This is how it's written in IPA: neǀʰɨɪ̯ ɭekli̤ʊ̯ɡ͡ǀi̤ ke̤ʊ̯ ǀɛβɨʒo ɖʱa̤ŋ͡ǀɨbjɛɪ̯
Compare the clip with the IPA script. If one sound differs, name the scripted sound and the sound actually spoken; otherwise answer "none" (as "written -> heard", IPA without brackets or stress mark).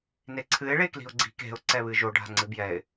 none